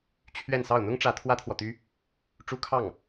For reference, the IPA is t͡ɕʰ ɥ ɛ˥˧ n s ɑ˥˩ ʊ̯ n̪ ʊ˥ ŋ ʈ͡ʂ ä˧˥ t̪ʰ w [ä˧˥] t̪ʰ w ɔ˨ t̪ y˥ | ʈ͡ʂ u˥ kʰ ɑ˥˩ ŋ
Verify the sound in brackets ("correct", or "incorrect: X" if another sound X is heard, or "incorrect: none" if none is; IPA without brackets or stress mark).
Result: incorrect: ä˥